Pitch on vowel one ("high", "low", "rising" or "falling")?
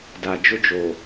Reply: low